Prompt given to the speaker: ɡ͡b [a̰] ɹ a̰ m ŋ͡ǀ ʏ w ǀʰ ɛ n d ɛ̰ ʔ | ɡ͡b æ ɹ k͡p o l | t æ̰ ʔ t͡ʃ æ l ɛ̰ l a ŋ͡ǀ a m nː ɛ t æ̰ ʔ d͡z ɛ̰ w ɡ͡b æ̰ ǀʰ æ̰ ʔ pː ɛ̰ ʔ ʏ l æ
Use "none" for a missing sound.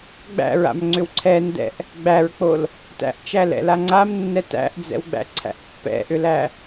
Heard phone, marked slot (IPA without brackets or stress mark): æ̰